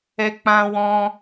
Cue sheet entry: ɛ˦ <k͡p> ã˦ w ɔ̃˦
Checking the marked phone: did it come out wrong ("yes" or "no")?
no